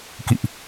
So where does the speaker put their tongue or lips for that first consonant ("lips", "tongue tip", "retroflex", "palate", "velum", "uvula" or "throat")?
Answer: velum